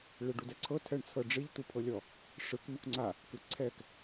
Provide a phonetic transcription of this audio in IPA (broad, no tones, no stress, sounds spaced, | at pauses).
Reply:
ɭ e ɖ u d ɛ ǀʰ ɤ tʰ ɛ ɳ t͡sʰ ɤ ɖ͡ʐ i ʎ t̪ u pʰ ɤ lʲ ɔ | ʂ ɯ k m ɯ k ŋ͡ǀ a | k ɯ ǀʰ ɛ k